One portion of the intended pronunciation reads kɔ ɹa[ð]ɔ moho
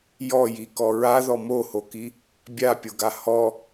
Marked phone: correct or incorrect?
correct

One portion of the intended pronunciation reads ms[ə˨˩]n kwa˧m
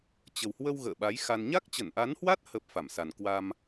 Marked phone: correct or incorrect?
incorrect: a˨˩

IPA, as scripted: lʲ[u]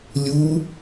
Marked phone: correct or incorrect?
correct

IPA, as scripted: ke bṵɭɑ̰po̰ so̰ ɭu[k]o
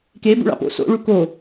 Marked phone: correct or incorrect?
correct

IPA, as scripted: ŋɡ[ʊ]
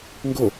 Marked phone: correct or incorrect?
correct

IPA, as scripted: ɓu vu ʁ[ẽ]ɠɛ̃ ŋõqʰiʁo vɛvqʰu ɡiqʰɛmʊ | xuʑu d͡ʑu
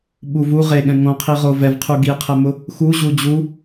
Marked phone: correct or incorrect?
incorrect: e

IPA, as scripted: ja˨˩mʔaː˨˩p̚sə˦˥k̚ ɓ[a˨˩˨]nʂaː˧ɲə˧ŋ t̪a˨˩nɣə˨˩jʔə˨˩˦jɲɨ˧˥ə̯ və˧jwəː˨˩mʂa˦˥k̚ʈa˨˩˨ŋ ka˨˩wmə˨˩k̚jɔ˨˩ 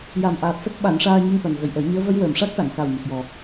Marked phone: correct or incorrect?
incorrect: a˨˩˦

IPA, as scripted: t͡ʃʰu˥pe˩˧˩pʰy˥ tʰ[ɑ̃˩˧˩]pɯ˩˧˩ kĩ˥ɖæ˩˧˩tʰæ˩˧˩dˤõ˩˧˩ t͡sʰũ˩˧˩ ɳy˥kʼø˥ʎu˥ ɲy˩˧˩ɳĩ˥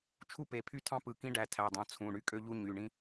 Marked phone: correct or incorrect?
incorrect: ɑ̃˥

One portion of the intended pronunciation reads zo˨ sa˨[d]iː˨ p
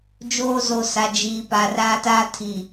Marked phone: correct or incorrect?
incorrect: d͡ʒ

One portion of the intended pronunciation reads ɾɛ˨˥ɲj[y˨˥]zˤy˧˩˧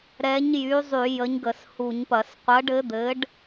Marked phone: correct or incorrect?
correct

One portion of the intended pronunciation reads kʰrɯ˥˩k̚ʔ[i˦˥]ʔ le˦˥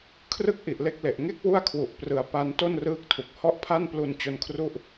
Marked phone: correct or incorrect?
incorrect: i˨˩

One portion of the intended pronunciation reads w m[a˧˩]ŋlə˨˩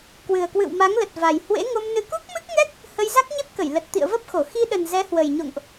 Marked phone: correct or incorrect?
incorrect: a˨˦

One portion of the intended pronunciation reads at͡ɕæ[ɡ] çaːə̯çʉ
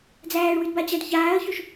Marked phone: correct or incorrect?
incorrect: d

